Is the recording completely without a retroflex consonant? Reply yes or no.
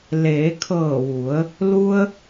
yes